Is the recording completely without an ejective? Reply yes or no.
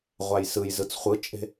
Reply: no